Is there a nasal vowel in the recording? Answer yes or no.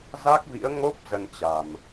no